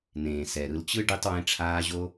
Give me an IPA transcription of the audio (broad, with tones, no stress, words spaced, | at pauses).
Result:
nẽː˨sɛ˨ɾɯ˧lt͡ɕɯ˦ ɖi˧tˤwẽ˧ ʈ͡ʂʰaː˧ʑo˧